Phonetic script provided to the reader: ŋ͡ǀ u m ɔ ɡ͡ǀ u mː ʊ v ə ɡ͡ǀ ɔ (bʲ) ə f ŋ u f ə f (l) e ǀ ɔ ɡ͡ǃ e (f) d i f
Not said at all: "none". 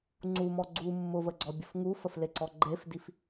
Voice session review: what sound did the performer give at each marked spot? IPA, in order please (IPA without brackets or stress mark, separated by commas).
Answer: bʲ, l, f